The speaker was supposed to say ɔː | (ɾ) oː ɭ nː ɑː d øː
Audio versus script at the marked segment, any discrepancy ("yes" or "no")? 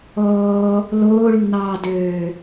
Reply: yes